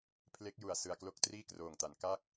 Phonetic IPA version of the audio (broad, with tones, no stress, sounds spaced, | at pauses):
pʰ l e˦˥ k̚ j u˨˩ a̯ s ɯ˧ a̯ k l o˥˩ k̚ t r iː˥˩ k r oː˨˩ ŋ t a˩˦ n k a˥˩ k̚